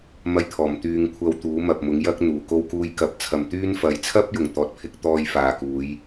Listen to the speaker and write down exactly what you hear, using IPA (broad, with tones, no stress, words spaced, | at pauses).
mɐ˧jt̪ʰɔː˨˩m t̪yː˧ŋkʷʰɐ˧wt̪uː˨˥ mɐ˨p̚mʊ˨˥ŋjɐ˥k̚n̪uː˨˩ ko˧wkuː˧j kɐ˨p̚ t͡sʰɐ˨mt̪yː˥nfɐ˨˥j t͡sʰɐ˥p̚jʊ˨˩ŋ t̪ɔː˨˥t̚pʰɪ˧k̚ t̪ɔː˧jfaː˨kuː˨˧j